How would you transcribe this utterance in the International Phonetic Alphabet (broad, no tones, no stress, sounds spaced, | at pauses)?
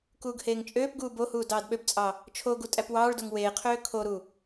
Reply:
k uː ɡ h eː ŋ t͡ʃʼ øː p ɡ uː b o h uː d ɑː d ɓ ø b t͡sʼ ɑ | t͡ʃʰ o ɡ u tʼ æ p w ɑː ɭ d o ŋ w eː qʰ øː kʰ o ɾ u